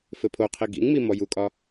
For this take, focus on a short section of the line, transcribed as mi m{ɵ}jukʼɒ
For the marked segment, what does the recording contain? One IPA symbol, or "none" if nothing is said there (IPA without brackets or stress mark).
ɔ